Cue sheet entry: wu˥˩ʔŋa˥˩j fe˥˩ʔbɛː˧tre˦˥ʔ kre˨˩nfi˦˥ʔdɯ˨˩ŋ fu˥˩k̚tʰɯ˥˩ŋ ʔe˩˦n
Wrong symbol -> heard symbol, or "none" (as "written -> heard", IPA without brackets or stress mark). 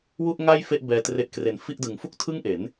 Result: i˦˥ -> i˥˩